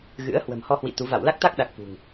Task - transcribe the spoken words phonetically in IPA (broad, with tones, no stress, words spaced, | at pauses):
ɣɨ̰˧˥ə̯ hwə̤˨˩mhɔ˧hwḭ˧˨ t̪u˨˦ va̰˧˨w la˦˥k̚t̪a˦˥k̚ɗa˨˩k̚ fṳ˨˩ŋ